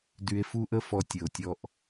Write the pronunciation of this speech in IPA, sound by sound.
d y˧ e̯ f u˦ ʔ ə˦ f ɔ˧ tʲ ə˨ o̯ tʲ ɔ˧ ʔ

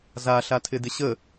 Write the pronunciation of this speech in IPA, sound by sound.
z a ɬ a tʰ ɪ d ɪ ɕ ə

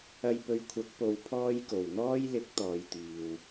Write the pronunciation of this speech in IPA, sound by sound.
ɐ˧ j p ɵ˧ ɥ kʷʰ ɐ˨˥ k̚ p o˨˧ w pʰ ɔː˥ j k o˨˩ w n̪ ɔː˥ j l ɪ˨˥ k̚ t̪ ɔː˨˧ j t̪ iː˨ w

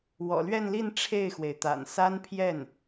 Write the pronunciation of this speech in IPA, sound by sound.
w ɔ̰˨˩ l ɥ ɛ˥˧ n l i˥˧ n ʈ͡ʂʰ e˥˩ ɪ̯ x w e˩ ɪ̯ t̪ a̰˨˩ n s a˥ n pʰ j ɛ˥˩ n

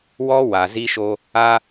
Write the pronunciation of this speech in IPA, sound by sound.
w ɔ˦ w a˨ z i˦ ʃ o˦ | a˦

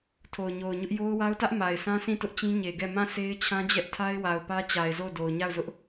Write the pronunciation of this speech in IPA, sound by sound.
tʰ o˨ ʊ̯ ɲ o˨ ʊ̯ ɲ ʊ˦ ʔ j o˦ ʊ̯ w a˦ ʊ̯ t ä˦ ʔ m a˨ ɪ̯ s ã˦ s ĩ˦˨ t ʊ˦ ʔ t͡ɕ ĩ˦ ɲ e˨ ɡ ɛ˦˨ m ã˦˨ s e˦ ɪ̯ t͡ɕʰ ã˦ d͡ʑ ɛ˦ ʔ tʰ a˦ ɪ̯ w a˨ ʊ̯ p ä˦ t͡ɕ a˨ ɪ̯ z o˦˨ ʊ̯ d o˨ ʊ̯ ɲ a˦˨ ʊ̯ z ʊ˦ ʔ

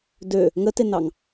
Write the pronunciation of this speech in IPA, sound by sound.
d ø | ŋ ə t e n ɑ ŋ

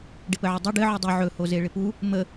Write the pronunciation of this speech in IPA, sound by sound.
ɖ ɪ p ə ʕ ə dˤ i ɖ ɘ ʕ u dˤ u ʕ ɵ h o z e ɭ ɪ p u | m ə

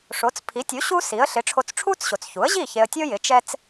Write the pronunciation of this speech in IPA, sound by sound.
ʂ o˩˥ t͡s pʰ i˩˥ tʲ u˩˥ ɕ u˥ s i˩˥ ə̯ ɬ ɪ˩˥ ʈ͡ʂʰ o˧ t͡s ʈ͡ʂʰ u˥ t͡s ɕ o˩ t͡s ç u˩˥ ə̯ ʑ i˥˩ ç e˧ ə̯ tʲ o˥ j ɪ˩˥ t͡ʃ ɛ˥ t͡s

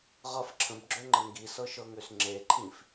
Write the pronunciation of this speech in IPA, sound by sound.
ʁ ʌ f ǁʰ ə̃ b ɡ͡ǁ ø ŋ͡ǃ ə ŋ ɡ i s ɤ ʃ ɤ ŋ ø s ŋ͡ǁ e ǃʰ ĩ f

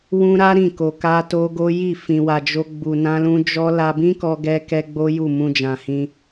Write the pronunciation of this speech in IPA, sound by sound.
w ũ˦ ɾ a˦ ɾ ĩ˦˨ k o˧ k a˦ t o˦ ɡ o˦ j i˦˨ f ĩ˧ w a˧ d͡ʒ o˦ ɡ͡b u˧ n ã˦ l ũ˦ d͡ʒ ɔ˦ l a˧ b ĩ˦ k ɔ˦ ɡ ɛ˦ k ɛ˦ ɡ͡b o˦ j u˦˨ m ũ˧ d͡ʒ ã˨ h ĩ˧

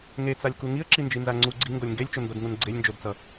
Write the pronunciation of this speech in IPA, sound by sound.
ŋ e t͡s a lʲ k u ŋ i ə̯ ǁ i n d͡ʒ i n z a ŋ͡ǀ u ɡ͡ǀ i ŋ ɡ o lʲ ŋ ɡ e lʲ t͡ʃ o n d o d ŋ u n ɡ͡ǀ e lʲ n d͡ʒ o d t͡s ʌ

